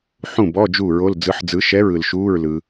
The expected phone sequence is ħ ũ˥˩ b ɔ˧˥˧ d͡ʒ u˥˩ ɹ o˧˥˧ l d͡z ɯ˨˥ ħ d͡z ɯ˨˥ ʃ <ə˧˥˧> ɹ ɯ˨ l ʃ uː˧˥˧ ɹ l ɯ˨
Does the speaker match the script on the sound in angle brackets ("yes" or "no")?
no